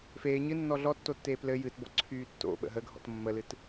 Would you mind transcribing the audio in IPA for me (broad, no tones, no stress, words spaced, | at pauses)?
feː ɲɨ nːɔɮɔtːotːeː plɘ jɨtbɔ ǀʰyːtːo̰ ɓə̰ɦəɡʱɔ̰t mːəlɨt